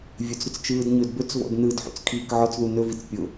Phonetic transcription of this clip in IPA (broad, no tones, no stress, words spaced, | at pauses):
vʲɵt͡sɾɵt͡s t͡ʃɯːdɲɵdbɵt͡svɔ̰d nɯdħṵt͡s kʰiːkʕɔt͡sðu nɵvit͡s pʲʊ